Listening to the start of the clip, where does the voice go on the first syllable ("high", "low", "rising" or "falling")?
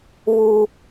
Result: high